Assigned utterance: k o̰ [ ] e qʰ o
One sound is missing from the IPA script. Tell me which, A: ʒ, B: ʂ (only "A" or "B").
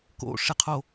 B